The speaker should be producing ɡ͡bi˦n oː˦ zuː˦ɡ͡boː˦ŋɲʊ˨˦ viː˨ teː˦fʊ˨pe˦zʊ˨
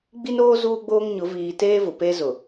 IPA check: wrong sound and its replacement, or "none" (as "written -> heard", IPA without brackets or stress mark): f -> v